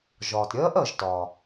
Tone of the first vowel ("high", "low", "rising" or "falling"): low